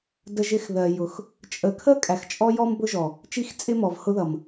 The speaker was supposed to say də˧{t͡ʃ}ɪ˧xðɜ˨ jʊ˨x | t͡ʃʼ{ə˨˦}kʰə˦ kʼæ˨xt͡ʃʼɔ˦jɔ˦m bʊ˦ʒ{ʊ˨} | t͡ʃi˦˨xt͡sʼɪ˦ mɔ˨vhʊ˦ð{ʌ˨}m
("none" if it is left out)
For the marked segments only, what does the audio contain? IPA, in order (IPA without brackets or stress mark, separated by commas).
ʒ, ə˨˦, ɔ˨, ʌ˨